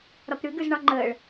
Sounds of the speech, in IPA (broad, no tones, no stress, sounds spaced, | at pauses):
ɾ ɒ p ɾ ʉ ɡ ʉ z ɳ ɒ ŋ͡ǃ əː ɭ